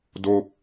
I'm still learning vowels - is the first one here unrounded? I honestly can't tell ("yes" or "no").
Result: no